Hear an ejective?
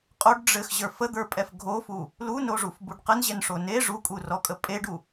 yes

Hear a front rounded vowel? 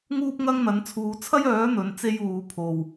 yes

